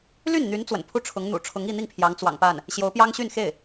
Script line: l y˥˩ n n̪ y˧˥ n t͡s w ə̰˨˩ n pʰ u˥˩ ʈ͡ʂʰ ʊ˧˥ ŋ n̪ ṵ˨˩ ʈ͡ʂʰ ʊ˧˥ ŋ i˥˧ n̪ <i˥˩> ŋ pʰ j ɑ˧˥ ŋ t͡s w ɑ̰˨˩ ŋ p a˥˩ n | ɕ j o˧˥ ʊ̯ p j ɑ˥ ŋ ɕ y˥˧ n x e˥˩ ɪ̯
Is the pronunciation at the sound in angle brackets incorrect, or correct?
correct